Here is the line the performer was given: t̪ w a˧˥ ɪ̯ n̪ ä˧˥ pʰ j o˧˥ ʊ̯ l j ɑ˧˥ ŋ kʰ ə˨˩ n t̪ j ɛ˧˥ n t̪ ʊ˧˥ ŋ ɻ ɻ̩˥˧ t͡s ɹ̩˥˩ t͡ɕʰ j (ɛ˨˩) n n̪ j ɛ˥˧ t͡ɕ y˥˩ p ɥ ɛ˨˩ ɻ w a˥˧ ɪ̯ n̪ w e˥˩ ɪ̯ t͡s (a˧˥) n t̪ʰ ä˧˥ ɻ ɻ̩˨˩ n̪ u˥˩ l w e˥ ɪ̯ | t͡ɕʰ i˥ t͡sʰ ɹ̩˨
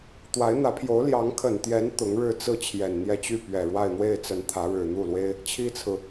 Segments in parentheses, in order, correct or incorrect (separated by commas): correct, incorrect